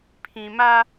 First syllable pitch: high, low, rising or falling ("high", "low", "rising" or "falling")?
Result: low